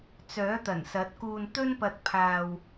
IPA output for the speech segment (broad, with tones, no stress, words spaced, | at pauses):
t͡sœː˨˥t̪ɐ˨˩n sɐ˨˥t̚kuː˧nt̪ɵ˥npɐ˧t̚ pʰaː˧w